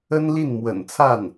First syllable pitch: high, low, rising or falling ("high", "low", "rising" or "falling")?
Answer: high